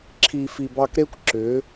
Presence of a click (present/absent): present